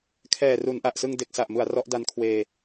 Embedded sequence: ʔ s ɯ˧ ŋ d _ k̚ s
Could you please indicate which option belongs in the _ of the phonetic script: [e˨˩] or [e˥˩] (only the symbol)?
e˨˩